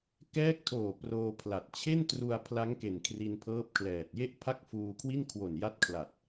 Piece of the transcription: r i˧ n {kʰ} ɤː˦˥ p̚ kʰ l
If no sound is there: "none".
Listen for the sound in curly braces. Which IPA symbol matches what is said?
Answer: pʰ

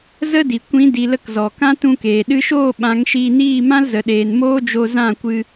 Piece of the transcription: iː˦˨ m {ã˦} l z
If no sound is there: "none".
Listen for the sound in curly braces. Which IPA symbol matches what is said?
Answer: ã˦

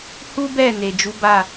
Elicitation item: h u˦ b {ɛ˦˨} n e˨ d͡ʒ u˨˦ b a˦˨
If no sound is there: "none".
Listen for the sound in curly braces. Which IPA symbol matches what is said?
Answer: ɛ˦˨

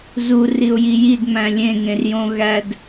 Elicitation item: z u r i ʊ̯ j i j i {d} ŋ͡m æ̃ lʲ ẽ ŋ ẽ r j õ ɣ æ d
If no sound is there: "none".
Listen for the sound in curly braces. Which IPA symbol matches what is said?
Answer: d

